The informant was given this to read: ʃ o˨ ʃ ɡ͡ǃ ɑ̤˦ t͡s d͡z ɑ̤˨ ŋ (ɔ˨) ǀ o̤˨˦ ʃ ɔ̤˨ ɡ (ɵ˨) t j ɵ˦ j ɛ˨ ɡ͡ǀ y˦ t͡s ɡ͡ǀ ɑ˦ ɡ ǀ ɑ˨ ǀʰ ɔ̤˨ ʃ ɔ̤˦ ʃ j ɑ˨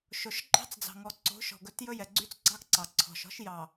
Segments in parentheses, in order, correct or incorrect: correct, incorrect

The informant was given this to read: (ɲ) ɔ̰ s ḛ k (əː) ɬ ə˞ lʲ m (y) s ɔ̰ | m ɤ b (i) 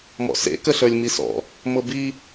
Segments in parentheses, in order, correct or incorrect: incorrect, incorrect, incorrect, correct

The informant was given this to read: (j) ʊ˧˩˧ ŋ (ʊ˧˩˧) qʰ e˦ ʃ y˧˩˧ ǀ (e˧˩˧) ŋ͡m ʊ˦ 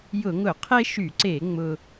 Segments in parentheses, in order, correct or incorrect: correct, correct, correct

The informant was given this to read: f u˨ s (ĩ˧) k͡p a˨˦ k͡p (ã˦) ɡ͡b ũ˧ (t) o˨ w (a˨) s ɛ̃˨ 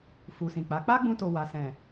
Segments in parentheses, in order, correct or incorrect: incorrect, incorrect, correct, correct

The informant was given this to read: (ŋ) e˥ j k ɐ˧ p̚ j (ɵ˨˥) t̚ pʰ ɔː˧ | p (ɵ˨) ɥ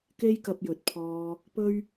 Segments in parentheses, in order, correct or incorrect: incorrect, correct, incorrect

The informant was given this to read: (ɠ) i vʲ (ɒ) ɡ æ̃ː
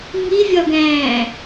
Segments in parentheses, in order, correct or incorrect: incorrect, correct

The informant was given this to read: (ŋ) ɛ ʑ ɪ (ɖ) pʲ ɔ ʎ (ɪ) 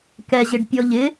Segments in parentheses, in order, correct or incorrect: incorrect, correct, correct

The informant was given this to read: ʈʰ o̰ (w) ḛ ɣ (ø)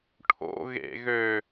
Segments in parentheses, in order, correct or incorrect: incorrect, correct

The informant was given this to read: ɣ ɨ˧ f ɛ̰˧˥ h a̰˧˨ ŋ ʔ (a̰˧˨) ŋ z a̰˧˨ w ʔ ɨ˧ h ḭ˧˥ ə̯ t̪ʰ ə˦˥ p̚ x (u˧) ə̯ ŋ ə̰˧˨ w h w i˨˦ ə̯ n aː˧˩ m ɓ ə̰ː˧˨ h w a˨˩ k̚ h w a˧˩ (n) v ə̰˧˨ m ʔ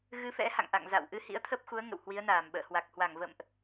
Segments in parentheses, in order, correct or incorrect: correct, incorrect, incorrect

